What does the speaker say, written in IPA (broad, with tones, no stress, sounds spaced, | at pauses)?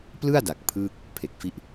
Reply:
p l ɯ˥˩ a̯ d a˨˩ k̚ pʰ ɯː˥˩ k̚ | pʰ e˨˩ k̚ f i˦˥ ʔ